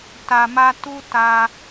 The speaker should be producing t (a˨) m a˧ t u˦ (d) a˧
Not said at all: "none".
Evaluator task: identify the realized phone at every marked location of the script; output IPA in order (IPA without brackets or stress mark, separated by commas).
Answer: a˨, t